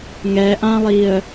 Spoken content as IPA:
ŋ ɛ ʔ ã lˠ i ə̯

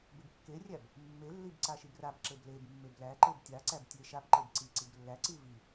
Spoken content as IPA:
b e b kː e rʲ æ b | mː e lː i b ǀ a ʃ i b r a b ǁ e b l e b mː e b l æ ǃ e b tʲ a ǀ æ b tʲ e ʃ a b ǃ e b ǀ i ǀ i b lː æ ǀ i v i

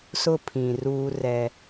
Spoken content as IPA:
s ʊ˦ pʰ ĩ˨ r uː˦ r ɛ˦

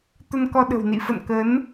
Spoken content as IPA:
t̪ ə˧ n k ɔ˧ ɗ ə̤˨˩ w n ḭ˧˨ f ə̰˧˨ n k ə˨˦ n

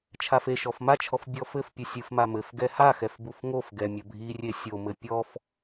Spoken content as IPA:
t͡ʃʰ a f e ʃ ɔ f m a t͡ʃʰ ɔ f bʲ ɔ f ɘ f pʲ ɨ sʲ ɨ f m a m ɘ f ɡ ɛ h a x ɛ f b u f ŋ o f ɡ ɛ mʲ ɐ bʱ i rʲ e sʲ o m ɘ pʲ ɔ f

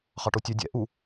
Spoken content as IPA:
χ ɑ ʈ o tʲ œ dʲ ɛ̰ ʔ u

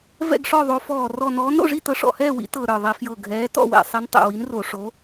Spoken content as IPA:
v ɛ̰˥˨ ɡ ʂ ɔ˥˨ ðˤ o˨˥ f ɔː˧˩ r ɔ˧˩ n ɔː˨˥ n ɾ o̰˥˨ ʐ i˥˨ t ɤ˨˥ ʂ ɔ̰˧˩ h ɛː˥˨ w ḭ˨˥ t ɤ˧˩ ɾ ə˞˧˩ ðˤ i˧˩˧ f j ɤ˧˩ ɡʱ ɛː˨˥ t ɔ̰˥˨ w ɛ̰˧˩˧ sˤ ɛ˨˥ n tˤ ɛ̰˧˩ w i˨˥ n r o˧˩˧ ʂ o˨˥

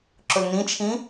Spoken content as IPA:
ǁ ʊ l n ĩ t͡ʃʰ ĩ

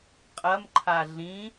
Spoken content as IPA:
qʼ ɐ m ǃʰ a ɮ ĩ

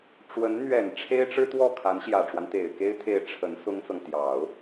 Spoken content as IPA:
ʈ͡ʂ w ə˧˥ n n̪ ɥ ɛ˨˩ n ʈ͡ʂʰ e˥ ɪ̯ ʈ͡ʂ ɻ̩˥ t̪ w ɔ˥˩ kʰ a˧˥ n ɕ j ä˨˩ ʈ͡ʂ w a˦ n t̪ e˨˩ ɪ̯ k e˥ ɪ̯ t̪ʰ e˥˩ ɪ̯ ʈ͡ʂʰ ə˧˥ n s ʊ˥ ŋ t͡s ɤ˨ ŋ t̪ j ɑ˨˩˦ ʊ̯

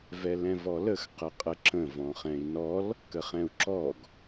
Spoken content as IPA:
v ɛ l ɛ̃ v ɔ l ə x q ə qʼ ə ǁ ə̃ v ɔ̃ χ ɛ̃ i̯ n ɔ l | k ə χ ɛ̃ u̯ ǁ ɔ ɡ

